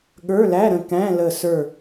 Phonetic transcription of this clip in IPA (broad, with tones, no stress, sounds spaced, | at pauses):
ɠ ə˞˧˥˧ l æ˧˥˧ ɾ ə̃˧˩ k æ̃˧˥˧ l ə˧˩ s ə˞˧˩